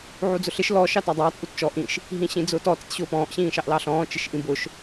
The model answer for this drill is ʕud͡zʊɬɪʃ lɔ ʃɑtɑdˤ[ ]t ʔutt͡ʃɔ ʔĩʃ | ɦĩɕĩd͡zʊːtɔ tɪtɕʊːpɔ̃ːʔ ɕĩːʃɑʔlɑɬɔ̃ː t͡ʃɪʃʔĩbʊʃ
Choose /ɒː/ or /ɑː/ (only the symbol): ɑː